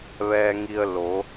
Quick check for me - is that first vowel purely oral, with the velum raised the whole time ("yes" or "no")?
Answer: yes